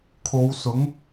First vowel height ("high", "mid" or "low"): mid